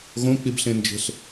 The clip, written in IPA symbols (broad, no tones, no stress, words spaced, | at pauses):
ɣõk͡pibɬẽnd͡ʒe̤ɬ